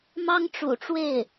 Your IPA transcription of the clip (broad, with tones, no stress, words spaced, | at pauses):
mɑ˥ŋʈ͡ʂṵ˨˩ʈ͡ʂwe˥˩ɪ̯